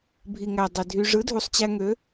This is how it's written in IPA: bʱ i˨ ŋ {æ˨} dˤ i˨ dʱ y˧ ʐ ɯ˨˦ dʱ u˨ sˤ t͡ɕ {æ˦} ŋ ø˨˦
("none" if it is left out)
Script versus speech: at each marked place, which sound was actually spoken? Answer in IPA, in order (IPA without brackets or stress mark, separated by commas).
æ˨, æ˧